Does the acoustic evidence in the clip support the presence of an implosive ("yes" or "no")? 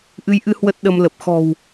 yes